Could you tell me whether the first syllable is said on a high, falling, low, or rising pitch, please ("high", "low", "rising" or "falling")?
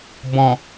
low